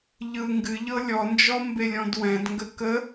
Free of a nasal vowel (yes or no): no